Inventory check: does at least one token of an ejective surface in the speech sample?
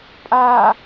yes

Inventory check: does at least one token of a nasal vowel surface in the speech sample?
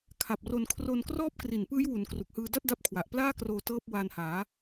no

